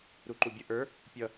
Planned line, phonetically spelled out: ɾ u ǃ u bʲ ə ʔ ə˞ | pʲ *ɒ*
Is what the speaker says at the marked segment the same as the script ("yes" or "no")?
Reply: no